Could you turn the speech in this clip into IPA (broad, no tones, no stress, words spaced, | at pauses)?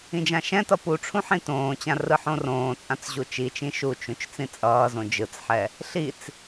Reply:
ĩd͡ʒãʃɛ̃tʌ puʈ͡ʂʰũ ħĩtõːt͡ɕã rɯħõrõːt͡sʼãt͡s ʑut͡ʃit͡ʃĩ ʃut͡ʃũt͡ʃ t͡sĩt͡sʼʌːzõ d͡ʒɯt͡sħɛ | ɬit͡s